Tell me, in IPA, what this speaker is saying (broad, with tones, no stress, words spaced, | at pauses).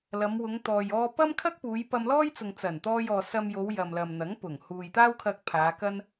lɐ˨˧mwʊ˨˧ŋt̪ɔː˨j ɔː˧ pɐ˥mkʰɐ˥k̚ puː˨˧jpɐ˧mlɔː˥jt͡sʊ˨ŋ t͡sɐ˨˩nt̪ɔː˧jɔː˨ sɐ˧mjo˨˧w jɐ˨mlɐ˨mn̪ɐ˨˥ŋ pʊ˨˩ŋ huː˨jt̪aː˥wkʰɐ˧k̚ pʰaː˨˧kɐ˥n